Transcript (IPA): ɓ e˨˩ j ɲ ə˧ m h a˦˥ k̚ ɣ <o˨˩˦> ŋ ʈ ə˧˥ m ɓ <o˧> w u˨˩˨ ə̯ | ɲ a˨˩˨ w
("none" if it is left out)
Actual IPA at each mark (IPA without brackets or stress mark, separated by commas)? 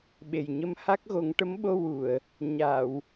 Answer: o˨˩˦, o˧